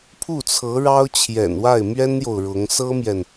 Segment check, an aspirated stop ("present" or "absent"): present